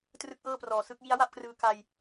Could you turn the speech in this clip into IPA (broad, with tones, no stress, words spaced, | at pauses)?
trɯ˥˩k̚ʔɤː˥˩prɔː˨˩sɯ˥˩k̚ ji˦˥a̯wa˥˩p̚krɯː˧ ka˧j